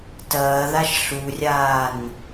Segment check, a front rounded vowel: absent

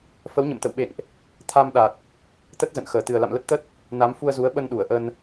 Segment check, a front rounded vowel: absent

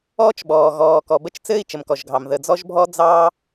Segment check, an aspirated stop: absent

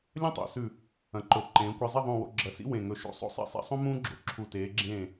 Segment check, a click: present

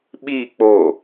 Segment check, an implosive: present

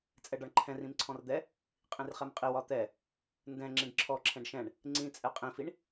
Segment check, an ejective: present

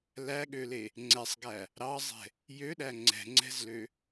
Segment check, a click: present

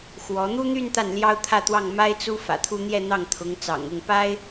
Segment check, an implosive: absent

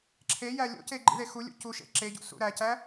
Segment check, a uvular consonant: absent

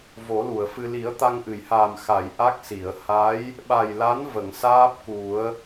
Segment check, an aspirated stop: absent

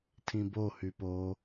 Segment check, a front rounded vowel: present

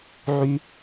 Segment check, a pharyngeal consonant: present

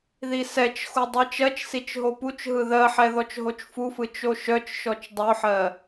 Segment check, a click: absent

